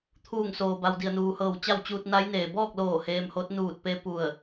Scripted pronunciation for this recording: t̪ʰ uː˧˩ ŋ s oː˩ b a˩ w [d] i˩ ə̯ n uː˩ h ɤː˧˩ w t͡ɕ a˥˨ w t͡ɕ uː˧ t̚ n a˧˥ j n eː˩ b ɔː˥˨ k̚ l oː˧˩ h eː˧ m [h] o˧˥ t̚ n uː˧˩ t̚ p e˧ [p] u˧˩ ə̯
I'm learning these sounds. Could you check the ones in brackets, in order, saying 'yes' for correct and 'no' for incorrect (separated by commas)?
yes, yes, yes